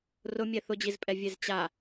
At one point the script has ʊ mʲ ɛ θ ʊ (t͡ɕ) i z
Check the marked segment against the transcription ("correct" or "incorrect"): incorrect